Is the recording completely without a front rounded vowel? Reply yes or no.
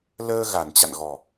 yes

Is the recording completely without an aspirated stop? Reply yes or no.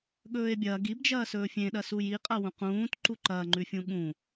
yes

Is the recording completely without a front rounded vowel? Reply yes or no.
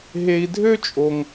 no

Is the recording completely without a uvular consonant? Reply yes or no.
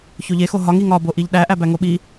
yes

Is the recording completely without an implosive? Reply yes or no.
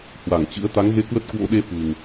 no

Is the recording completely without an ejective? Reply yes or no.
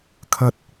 yes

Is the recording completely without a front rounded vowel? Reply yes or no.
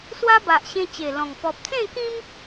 yes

